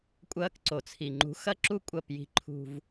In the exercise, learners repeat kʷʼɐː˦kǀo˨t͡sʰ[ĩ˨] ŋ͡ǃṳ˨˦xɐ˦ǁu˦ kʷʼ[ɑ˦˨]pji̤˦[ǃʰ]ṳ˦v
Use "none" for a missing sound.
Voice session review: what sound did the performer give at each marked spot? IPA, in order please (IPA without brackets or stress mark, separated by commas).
i˨, ɐ˦˨, ǃʰ